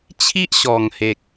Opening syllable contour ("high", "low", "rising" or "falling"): high